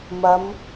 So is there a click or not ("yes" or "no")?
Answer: no